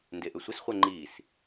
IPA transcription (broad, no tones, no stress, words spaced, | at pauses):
ndeʔʏsʷɪsχʷɛ ŋ͡ǃis